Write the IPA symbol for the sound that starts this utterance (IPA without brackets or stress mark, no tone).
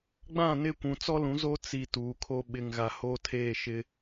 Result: ɡ͡b